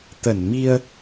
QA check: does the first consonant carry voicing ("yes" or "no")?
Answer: no